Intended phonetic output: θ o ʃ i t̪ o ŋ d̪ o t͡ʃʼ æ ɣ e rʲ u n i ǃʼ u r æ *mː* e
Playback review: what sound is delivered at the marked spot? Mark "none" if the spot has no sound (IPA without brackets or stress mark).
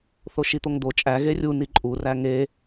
ŋ